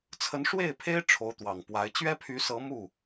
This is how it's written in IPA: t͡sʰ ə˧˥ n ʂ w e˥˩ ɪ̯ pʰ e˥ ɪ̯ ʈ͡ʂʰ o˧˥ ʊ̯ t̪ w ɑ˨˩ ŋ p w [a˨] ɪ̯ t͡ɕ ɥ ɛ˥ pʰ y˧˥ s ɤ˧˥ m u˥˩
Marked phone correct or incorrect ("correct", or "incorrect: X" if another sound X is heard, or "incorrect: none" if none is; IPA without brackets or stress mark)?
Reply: incorrect: a˧˥